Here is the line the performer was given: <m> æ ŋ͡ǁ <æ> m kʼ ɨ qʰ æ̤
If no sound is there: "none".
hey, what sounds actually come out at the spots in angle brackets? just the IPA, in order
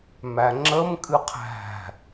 m, ə

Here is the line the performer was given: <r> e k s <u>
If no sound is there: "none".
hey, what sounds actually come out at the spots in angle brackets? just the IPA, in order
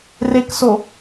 r, o

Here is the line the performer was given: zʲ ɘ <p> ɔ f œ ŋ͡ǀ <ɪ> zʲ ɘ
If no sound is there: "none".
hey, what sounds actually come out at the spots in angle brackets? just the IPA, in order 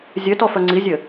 t, i

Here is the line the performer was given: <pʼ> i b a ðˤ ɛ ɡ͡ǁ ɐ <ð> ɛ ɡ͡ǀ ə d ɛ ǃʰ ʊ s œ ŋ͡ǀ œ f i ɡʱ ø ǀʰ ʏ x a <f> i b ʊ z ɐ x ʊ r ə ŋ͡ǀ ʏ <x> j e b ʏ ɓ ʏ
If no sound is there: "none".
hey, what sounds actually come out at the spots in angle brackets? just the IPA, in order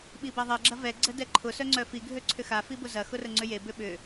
ɓ, v, f, none

